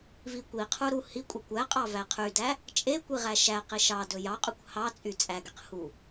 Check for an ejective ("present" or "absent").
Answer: present